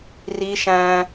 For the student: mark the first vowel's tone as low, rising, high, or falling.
high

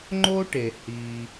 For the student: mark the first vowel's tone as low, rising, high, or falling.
high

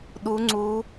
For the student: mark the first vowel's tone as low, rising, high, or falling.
rising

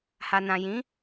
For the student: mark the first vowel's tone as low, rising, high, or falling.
low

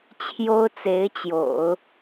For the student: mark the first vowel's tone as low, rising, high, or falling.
high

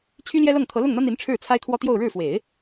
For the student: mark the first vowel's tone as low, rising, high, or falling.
high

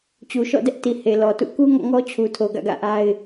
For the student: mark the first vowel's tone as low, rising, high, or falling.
low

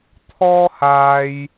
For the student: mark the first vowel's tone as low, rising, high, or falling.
high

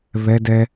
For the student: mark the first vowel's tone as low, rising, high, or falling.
high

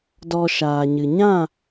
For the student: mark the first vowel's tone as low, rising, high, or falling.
low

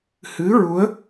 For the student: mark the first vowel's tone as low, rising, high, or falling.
rising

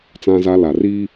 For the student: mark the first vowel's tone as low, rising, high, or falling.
high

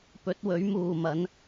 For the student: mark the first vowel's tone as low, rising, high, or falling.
rising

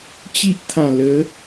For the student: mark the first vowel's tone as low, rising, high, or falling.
high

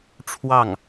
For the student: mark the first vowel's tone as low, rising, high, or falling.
falling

